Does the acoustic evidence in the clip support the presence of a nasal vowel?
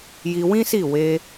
yes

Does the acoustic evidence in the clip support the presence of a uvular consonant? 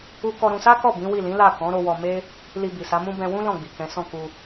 no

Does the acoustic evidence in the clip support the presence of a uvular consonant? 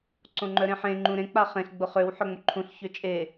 yes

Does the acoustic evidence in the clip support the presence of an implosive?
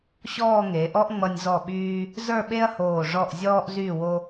yes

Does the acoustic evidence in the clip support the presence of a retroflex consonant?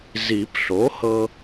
no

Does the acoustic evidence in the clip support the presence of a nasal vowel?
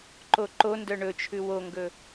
no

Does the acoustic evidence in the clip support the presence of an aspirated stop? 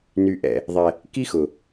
no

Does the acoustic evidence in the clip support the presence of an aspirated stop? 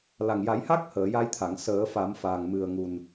yes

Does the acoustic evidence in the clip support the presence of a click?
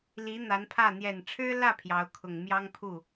no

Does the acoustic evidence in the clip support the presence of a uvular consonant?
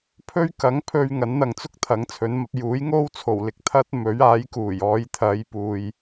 no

